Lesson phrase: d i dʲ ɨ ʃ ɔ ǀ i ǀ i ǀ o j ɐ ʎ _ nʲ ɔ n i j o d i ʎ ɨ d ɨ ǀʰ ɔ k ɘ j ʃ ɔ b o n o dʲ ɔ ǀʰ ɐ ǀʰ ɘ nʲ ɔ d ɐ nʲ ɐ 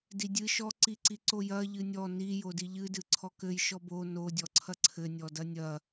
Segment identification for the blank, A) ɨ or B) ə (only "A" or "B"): A